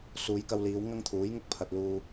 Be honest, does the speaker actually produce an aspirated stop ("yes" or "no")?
yes